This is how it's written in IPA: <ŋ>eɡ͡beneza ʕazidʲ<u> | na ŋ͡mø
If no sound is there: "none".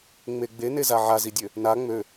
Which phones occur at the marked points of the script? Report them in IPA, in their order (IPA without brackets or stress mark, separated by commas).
ŋ͡m, ø